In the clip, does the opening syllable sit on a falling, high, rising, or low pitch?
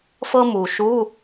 high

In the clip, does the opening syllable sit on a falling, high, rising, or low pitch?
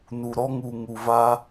low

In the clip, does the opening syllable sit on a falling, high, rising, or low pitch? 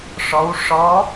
rising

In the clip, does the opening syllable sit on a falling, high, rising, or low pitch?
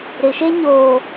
low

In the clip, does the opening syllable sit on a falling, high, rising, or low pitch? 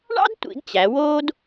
high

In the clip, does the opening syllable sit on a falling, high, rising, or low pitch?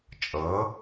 rising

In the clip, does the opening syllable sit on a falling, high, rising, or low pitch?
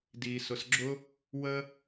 low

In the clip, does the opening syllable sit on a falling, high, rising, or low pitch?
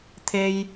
high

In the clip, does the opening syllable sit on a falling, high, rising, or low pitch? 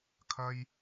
low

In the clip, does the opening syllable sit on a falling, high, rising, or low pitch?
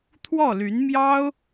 falling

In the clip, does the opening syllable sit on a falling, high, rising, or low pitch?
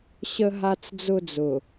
high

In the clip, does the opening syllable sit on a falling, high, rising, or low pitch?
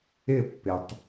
falling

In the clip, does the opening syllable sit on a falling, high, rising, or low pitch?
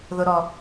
high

